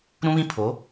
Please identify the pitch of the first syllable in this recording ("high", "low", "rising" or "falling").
high